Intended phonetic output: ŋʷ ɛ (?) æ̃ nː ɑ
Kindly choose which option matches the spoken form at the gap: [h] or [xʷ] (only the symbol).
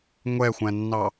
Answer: xʷ